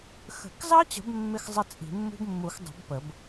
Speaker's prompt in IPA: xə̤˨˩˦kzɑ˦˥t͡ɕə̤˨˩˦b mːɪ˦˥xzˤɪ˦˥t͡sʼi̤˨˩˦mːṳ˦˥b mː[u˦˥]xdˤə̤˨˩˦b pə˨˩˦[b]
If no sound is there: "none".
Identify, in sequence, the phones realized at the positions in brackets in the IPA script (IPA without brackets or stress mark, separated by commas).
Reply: u˨˩˦, b